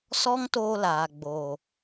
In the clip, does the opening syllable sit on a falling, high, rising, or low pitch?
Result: high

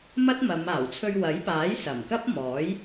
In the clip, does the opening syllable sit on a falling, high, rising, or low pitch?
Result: high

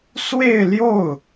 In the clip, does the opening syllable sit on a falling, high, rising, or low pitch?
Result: falling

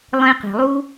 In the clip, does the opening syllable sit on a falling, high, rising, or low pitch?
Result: high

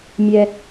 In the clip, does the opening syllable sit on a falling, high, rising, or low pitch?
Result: high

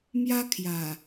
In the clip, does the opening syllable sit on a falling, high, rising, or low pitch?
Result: high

